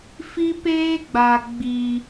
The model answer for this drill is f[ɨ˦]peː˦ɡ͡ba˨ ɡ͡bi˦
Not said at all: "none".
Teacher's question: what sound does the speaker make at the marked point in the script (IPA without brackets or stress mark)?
i˦